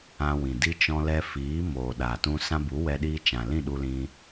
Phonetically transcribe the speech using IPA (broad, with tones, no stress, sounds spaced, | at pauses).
ã˧ w ĩ˨ d i˦ t͡ʃ ɔ̃˧ l ɛ˧ f iː˨˦ m oː˨ ɗ a˨ t ũ˧ s ã˧ b u˨˦ w ɛ˧ ɗ iː˧ t͡ʃ ã˨ l ĩ˦˨ ɗ u˧ l ĩ˧